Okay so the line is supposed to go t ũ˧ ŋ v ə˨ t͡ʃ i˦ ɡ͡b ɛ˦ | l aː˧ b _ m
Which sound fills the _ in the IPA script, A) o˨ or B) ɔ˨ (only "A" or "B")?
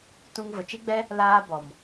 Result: B